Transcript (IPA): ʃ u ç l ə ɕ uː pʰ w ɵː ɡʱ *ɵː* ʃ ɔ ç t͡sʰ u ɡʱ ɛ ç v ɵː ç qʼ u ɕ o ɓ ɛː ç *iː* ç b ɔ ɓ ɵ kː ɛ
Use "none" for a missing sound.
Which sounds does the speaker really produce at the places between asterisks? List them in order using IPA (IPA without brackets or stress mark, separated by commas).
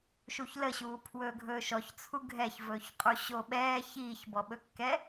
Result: ɵː, iː